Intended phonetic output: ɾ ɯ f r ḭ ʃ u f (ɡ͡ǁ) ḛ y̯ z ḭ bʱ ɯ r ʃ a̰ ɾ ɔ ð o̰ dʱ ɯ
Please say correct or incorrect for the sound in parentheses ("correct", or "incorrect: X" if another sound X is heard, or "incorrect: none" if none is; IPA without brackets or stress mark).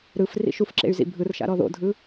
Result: incorrect: ǁ